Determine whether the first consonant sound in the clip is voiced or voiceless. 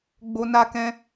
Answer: voiced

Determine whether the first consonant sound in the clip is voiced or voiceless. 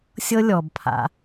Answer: voiceless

